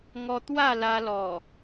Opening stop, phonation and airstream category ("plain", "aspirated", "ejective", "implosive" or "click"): plain